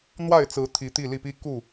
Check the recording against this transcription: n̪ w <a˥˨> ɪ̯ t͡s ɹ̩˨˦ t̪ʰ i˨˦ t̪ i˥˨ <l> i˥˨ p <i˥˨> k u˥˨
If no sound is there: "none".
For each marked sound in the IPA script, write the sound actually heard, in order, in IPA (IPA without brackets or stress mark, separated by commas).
a˥˨, l, i˦